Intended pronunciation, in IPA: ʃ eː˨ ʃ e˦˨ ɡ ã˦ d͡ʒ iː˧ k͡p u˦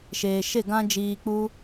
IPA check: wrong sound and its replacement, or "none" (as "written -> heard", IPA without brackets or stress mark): none